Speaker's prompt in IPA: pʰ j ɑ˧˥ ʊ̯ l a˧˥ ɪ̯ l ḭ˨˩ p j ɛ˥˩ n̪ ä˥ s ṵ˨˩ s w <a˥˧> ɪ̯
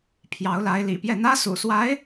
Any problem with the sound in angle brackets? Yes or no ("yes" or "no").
yes